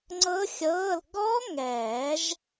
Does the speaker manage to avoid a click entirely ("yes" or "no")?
no